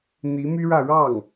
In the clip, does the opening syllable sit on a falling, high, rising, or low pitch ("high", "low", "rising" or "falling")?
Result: rising